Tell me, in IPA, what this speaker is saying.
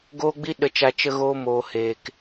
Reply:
ɡ oː˦ ɡ͡b i˦ ɗ ə˧ t͡ʃ a˧ t͡ʃ ə˧ ɣ oː˧ m oː˨ h eː˨ k

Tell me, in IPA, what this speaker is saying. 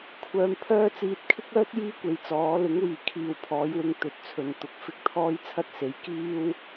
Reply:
kʷʰ œː˨ m pʰ œː˥ t͡s iː˨ t̚ kʰ ɪ˥ k̚ œː˥ t̚ j iː˥ kʷ e˨ j t͡s ɔː˨˥ l ɪ˨˥ ŋ w iː˨˩ kʰ iː˨˩ w pʰ ɔː˨˥ j w ɪ˧ ŋ t̪ ɵ˨ t̚ t͡sʰ ɵ˨ n t̪ ʊ˨ k̚ f ɪ˥ k̚ t̪ʰ ɔː˥ j t͡sʰ ɐ˥ t̚ s e˨˥ j k iː˥ w

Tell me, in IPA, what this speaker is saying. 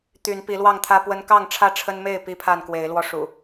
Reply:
t̪ y˨˦ n p i˨˦ l w ɑ˥˨ ŋ t̪ʰ ä˦ p w ə˦ n k ɑ˥˨ ŋ ʈ͡ʂʰ ä˥˨ ʈ͡ʂʰ ə˦ n m e˥˨ ɪ̯ p i˦ pʰ a˥˨ n k w e˨˦ ɪ̯ l w ɔ˦ ʂ ṵ˨˩

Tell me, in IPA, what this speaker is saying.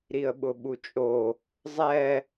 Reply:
ɾ i ə̯ ɓ ʊ ɓ u t͡ʃʼ o | zˤ ɛ

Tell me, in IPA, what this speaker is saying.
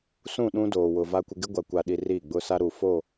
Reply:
s ũ˦˨ ɗ ũ˦ d oː˨ w ʊ˨ v a˦ kʷ ɪ˦ ɡ ɪ˦ ɡʷ a˨ kʷ a˨ ɗ i˨ r i˦˨ ɡ͡b ʊ˦ s a˦ ɾ u˨ f o˦˨

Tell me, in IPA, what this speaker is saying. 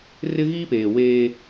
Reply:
r ɪ˦ ɣ i˦ p eː˨ w eː˦

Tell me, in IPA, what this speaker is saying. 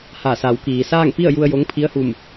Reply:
h a˧˩ s a˩˧ w k iː˩ s aː˥˨ ŋ p i˥˨ ə̯ j u˧ ə̯ j o˧˥ ŋ pʰ i˧˥ ə̯ h u˧˩ m

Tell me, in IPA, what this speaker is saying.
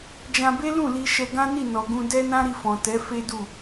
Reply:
d͡ʒ ã˧ b e˦ l ũ˦˨ l i˧ ʃ ɛ˧ ɡ ã˦ n i˦˨ n ɔ˨ ɡ ũ˧ d ɛ˦ n ã˦ ɾ i˧ f ɔ̃˨ t ɛ˨˦ f e˦ d u˦˨

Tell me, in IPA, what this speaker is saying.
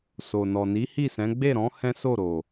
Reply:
s o˨ n ɔ˨ n i˨˦ h i˦˨ s ɛ̃˨˦ ɡ͡b e˦˨ ɾ ɔ̃˨˦ h ɛ̃˦ s o˦˨ ɾ o˨

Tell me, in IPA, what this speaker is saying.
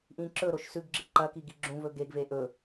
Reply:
ʔ ĩ ǁ ɵ ɾ o ʃ s ʉ ɡ ɡ͡ǁ ɨ ǃ ɐ k i ɡ i ɡ͡ǁ ũ v ɵ ɡ e ɡ v e ʔ ɵ

